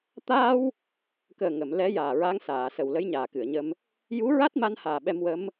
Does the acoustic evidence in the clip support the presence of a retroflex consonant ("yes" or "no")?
no